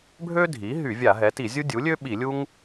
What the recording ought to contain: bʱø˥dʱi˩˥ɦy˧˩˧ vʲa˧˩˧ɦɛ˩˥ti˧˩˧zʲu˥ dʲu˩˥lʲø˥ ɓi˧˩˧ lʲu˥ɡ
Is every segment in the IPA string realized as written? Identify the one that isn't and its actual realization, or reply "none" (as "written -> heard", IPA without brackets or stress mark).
ɡ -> ŋ